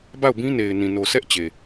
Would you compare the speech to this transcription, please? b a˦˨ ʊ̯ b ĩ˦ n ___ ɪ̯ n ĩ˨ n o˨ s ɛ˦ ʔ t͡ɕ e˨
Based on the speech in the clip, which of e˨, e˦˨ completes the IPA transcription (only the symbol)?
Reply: e˨